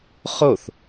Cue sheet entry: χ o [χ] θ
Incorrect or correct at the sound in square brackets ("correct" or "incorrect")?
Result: incorrect